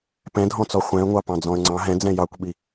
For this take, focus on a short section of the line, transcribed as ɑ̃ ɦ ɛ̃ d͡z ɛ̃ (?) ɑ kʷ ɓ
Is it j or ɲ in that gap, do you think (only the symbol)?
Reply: j